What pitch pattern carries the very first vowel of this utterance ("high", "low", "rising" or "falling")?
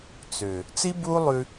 low